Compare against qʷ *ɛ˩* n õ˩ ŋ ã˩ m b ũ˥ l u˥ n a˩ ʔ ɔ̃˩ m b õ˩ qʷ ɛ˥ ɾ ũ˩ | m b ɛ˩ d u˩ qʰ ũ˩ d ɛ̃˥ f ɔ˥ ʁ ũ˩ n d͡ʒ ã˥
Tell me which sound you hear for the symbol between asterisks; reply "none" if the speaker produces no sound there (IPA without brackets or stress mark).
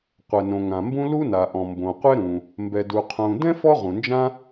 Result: ɛ˩